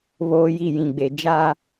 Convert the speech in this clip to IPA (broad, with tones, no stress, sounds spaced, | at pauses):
β oː˦ j i˦˨ j ĩ˨ ɡ͡b e˨ d͡ʒ a˦